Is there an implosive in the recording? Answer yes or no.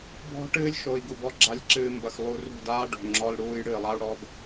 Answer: no